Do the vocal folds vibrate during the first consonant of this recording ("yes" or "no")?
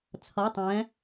no